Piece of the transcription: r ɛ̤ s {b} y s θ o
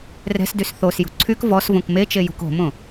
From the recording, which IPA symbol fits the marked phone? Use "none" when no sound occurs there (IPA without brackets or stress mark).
d